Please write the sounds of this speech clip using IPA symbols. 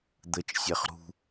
d̪ət͡ʃ sʲɛχɾṳ

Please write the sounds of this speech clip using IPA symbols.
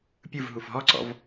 pʲɯv ɦufɦɔǀɔ̰v

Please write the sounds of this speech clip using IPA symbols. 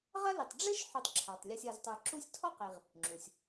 ʁɐ˥lɪ˨tˤ ɖ͡ʐɪ˥ʃ ħʉ˨tˤǁʰa˩tˤlʲɔ˨sʲ ɐ˨ztˤə˞˨ǁu˦sʲtʰɔ˥ qe˨ʁ | ŋ͡ǁu˩sʲ

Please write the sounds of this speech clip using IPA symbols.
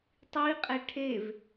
tˤiqʼɛ ʈʰev

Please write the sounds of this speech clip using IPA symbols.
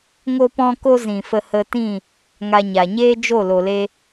ŋo˦pɔ̃˦ ko˦zĩ˨fə˧ hə˧tĩ˦˨ | ŋa˧ɲa˨ ɲeː˦d͡ʒo˦˨lo˨le˧

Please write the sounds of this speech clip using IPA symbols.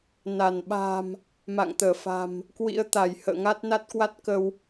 na˧˩nɓa̤˨˩m | ma̰˧˨ŋt̪əː˧˩ fa̤˨˩m | kwḭ˧˥ə̯t̪a˧˩j hə̰ː˧˨ŋa˦˥t̚na˦˥t̚kwa˦˥t̚ kə˧w

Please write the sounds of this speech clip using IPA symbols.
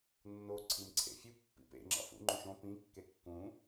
nːo ǀʰimǀʰḛfʲu pːḭpḛ ŋ͡ǁɑ̰fṵ ŋ͡ǃũʃõ pĩ kːekːũ

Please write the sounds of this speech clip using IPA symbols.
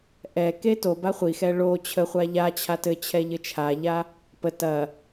ʔɛke toba χʷixɛ ɭo t͡ɕʰəχʷa ʎa t͡ɕʰatɘt͡ɕʰɛ ʎɘt͡ʃʰaʎa | pə tɐ

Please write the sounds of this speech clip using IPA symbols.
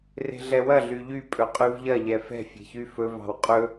re̤ɮɛwɐ ɮyʎy pʼɵqʼyvʎɐ ʎɛfɛ̤ fʲe̤çyfɵ vɑ̤wqʼɵ

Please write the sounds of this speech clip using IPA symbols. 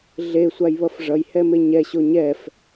ɮesʷajβʌf ʐʌjhɛme ɲɛɕo ɲɛf

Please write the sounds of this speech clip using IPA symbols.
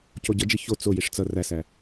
coɟʌd͡ʒi ço t͡sojiʂ t͡sʌ ræsæ

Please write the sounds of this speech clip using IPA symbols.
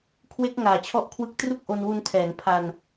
kʰwe˦˥k̚ŋaː˨˩ t͡ɕʰɔ˥˩ʔkʰwɯ˥˩k̚ tru˥˩k̚ʔo˧nwu˧ntʰɛː˩˦n pʰa˧n

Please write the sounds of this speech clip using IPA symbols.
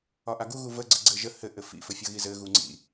ɒʔaɡu ɣuvə ɡ͡ǀɘɡ͡ǀɘʒə hɘ ʔɘfḭ fɘfʲʌɣizɘ ɣuŋ͡ǀḭ

